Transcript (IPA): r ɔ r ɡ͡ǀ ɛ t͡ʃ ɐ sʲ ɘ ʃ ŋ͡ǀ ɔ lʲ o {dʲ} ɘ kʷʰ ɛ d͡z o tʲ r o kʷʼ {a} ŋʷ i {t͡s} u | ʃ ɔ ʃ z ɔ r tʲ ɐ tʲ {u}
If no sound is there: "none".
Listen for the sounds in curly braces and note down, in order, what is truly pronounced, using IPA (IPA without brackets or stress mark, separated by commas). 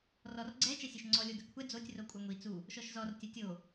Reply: d, a, t͡s, o